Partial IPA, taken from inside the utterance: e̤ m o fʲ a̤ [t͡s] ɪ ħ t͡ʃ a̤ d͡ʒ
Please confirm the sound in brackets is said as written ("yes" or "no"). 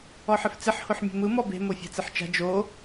yes